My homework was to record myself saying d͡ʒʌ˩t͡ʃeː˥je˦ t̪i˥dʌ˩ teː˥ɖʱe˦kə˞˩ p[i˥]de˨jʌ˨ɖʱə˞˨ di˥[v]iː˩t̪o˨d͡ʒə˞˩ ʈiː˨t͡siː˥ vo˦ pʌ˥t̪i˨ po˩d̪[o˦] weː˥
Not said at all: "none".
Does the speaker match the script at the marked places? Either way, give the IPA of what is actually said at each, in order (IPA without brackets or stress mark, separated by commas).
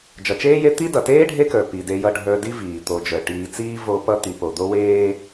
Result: i˩, v, o˦